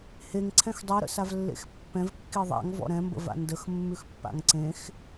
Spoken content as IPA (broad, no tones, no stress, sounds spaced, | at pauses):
h e ŋ ǀʰ ɛ̃ x dˤ i ɾ ə̰ s a v lː ḛ x pː ɛ̃ v kː i ðˤ a̰ ŋ v ɔ̰ ɾ ɛ̃ m b ə̰ v a̰ n d ə x mː ʉ x pː a̰ ŋ ǀ ẽ x